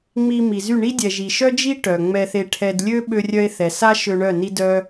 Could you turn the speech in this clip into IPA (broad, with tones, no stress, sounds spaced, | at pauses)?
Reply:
ŋ͡m i˧ m i˨ z y˦˨ ɳ i˦ dʲ ɛ˨ ʒ i˨ ʃ œ˦ d͡ʒ i˦ ʈ œ˨ ŋ͡m ɛ˧ θ e˧ ʈʰ ɛ˧ d lʲ ø˦ ɓ ø˧ rʲ œ˧ e̯ θ ɛ˨ s a˦ ʃ ø˧ ɳ œ˦˨ n i˦ d œ˦